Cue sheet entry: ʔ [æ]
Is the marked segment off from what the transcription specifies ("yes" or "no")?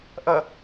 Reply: yes